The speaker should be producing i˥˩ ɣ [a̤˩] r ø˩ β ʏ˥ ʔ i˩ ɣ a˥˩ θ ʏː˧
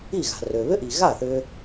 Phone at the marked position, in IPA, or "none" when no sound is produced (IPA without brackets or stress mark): a̤˩